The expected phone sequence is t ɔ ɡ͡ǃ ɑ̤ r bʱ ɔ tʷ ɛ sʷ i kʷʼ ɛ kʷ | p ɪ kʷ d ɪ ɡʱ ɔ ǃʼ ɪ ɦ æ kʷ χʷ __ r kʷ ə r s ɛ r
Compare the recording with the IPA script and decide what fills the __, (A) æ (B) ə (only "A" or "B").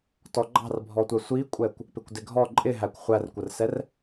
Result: A